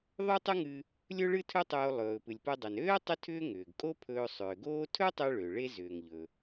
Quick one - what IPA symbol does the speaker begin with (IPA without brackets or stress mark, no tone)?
ðˤ